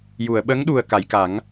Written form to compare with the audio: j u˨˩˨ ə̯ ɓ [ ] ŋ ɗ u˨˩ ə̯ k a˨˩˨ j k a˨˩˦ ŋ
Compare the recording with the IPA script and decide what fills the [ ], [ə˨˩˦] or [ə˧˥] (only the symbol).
ə˧˥